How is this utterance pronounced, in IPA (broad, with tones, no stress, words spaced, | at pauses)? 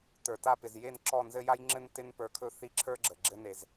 tə˞˨ta˦˨pɪ˨z je˦˨nǁɔ˦˨nzɘ˦ ja˦jŋ͡ǁɘ˦n tɪ˦npə˞˧kʰɵ˦ θi˦˨ǁʰə˞˦ɡ͡ǁə˨ ɡ͡ǁɘ˦ne˧z